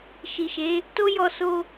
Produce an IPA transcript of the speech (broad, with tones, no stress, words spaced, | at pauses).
ʃi˨ʃe˨˦ | to˦ jɔ˧so˧